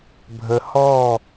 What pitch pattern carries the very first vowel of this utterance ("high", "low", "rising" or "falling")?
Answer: low